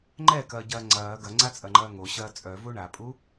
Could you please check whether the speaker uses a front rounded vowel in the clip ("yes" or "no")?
yes